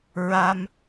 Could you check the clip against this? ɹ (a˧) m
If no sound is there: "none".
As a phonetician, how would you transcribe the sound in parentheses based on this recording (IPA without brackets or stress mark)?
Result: a˧